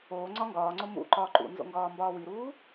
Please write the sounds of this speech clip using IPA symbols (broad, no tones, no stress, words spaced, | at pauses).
oː ŋ͡ǀɒŋɡɒːŋ͡ǀo mṵ ǃɒːǃṵnzo̰ ŋɡɒːmbɒːwiɾuː